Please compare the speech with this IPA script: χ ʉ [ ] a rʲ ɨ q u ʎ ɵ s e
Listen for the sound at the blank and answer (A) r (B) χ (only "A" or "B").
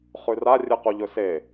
A